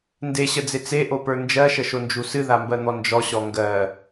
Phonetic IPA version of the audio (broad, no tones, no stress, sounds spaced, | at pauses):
n d e ɕ ə d͡z e t͡s e ʔ o p ə˞ n d͡ʒ ɜ ʃ ə ʃ o n d͡ʒ u s ɨ ð a m b ɜ n̪ ɔ n d͡ʒ ɔ ɕ ɔ ŋ ɡ ɜ